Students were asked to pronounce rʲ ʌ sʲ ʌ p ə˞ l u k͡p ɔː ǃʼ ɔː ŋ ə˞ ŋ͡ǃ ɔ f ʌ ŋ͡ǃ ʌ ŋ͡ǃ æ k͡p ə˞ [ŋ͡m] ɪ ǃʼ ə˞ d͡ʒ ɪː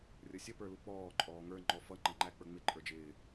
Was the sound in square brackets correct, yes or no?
yes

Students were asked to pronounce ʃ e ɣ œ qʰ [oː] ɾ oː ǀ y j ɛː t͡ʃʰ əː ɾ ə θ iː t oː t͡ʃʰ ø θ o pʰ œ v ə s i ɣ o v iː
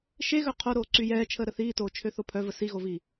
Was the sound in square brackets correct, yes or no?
no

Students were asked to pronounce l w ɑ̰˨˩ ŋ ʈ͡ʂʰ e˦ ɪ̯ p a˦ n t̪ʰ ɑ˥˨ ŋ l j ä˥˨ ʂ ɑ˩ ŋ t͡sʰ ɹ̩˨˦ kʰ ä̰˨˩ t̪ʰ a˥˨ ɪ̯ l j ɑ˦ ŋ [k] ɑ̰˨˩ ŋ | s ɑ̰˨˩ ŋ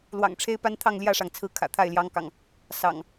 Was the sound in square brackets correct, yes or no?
yes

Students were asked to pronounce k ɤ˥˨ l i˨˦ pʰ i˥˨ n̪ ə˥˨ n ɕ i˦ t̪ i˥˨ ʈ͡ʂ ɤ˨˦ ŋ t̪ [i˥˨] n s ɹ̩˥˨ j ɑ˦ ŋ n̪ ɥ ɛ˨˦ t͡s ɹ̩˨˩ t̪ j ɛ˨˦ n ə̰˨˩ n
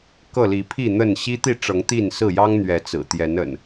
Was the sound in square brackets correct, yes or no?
yes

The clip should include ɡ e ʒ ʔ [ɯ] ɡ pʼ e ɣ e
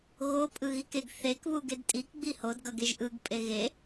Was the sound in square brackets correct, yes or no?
yes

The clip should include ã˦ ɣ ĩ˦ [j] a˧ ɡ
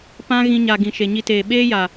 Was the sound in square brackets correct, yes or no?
no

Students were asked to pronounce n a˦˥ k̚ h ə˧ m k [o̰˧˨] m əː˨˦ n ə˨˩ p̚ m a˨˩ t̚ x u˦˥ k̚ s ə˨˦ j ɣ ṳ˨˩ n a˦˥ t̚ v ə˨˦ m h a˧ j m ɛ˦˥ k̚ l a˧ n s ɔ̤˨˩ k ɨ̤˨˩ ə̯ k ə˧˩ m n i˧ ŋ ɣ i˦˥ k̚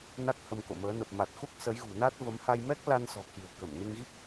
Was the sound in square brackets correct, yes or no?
yes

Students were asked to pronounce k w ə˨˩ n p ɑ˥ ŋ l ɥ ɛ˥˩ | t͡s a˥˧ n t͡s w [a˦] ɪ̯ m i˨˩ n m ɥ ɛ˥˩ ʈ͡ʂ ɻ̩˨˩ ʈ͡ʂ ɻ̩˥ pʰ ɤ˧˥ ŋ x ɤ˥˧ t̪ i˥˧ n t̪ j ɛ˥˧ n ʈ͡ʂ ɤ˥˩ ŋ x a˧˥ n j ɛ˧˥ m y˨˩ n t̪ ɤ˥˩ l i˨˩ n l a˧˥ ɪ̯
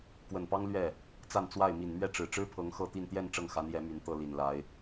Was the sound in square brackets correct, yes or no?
no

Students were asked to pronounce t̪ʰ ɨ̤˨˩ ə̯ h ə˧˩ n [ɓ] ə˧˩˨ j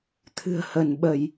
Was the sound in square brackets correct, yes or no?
yes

